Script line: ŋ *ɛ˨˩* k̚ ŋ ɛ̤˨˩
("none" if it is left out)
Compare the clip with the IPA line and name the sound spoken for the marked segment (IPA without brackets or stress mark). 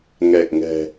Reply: ɛ˨˩